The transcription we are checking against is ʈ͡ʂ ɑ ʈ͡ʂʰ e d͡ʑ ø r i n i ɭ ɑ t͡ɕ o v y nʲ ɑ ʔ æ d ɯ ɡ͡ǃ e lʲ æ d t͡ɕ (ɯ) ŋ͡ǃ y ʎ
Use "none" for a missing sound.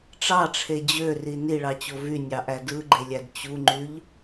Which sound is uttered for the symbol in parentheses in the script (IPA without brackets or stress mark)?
u